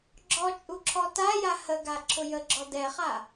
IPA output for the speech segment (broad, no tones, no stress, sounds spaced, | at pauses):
ɡ͡ǁ ɔ t͡ʃʼ u ǁʰ ɔ t a j a h ə ɡ a ǁʰ ʊ j ə ɡ͡ǁ ɔ d ɛ χ a